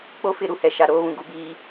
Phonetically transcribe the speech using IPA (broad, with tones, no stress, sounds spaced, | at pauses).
k͡p o˦ f ɪ˦˨ ɾ u˦ h ɛ˨ ʃ a˨ ɾ oː˦ β ũ˨ ɡ u˨ b iː˨